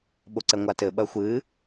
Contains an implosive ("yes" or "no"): yes